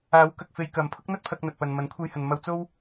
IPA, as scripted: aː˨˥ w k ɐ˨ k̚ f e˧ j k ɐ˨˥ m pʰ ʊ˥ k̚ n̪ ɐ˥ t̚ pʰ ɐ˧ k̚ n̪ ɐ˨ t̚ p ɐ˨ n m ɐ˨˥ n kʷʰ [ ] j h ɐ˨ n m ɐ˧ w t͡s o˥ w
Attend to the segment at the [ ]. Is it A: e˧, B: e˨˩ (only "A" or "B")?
A